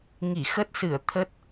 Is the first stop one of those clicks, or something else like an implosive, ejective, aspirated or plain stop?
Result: plain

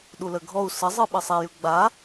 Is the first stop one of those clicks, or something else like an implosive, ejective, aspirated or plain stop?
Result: implosive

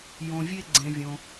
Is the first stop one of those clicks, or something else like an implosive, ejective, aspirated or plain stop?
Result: click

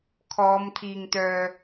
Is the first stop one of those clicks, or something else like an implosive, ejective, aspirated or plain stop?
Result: aspirated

